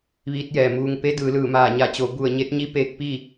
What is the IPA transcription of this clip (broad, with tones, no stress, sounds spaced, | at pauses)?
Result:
ʋ iː˧˥ t̚ j ɛː˩ m uː˧ ŋ p e˧˥ d ɯː˩˧ l ɯː˧˩ m aː˧˩ ɲ a˧˩ t͡ɕ o˩˧ b u˧˩ ə̯ ɲ e˧˥ t̚ ɲ i˧˥ p eː˧˥ k̚ p iː˥˨